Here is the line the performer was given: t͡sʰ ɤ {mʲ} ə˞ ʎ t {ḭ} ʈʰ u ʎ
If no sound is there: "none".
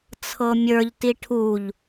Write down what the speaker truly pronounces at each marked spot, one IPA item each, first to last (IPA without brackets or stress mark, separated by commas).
mʲ, i